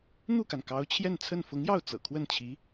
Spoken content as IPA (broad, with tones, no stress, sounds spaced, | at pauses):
n̪ u˥˩ k a˩ n k ɑ˧˥ ʊ̯ t͡ɕʰ j ɛ˥˧ n t͡sʰ ə˥˩ n f ʊ˧˥ ŋ j ɑ˥˩ ʊ̯ t͡s ɤ̰˨˩ kʰ w ə˥˩ n t͡ɕʰ i˧˥